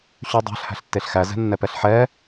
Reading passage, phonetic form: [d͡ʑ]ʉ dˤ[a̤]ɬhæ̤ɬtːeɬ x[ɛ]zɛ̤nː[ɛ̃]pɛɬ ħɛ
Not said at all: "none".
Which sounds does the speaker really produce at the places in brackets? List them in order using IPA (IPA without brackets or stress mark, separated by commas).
ɕ, æ̤, æ, ɛ